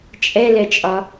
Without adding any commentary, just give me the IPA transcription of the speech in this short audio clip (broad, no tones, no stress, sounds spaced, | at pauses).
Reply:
t͡ʃʼ ɛ l ɛ t͡ʃʼ ɒ